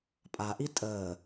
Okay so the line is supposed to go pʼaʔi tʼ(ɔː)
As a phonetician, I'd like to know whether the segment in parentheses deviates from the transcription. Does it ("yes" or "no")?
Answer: yes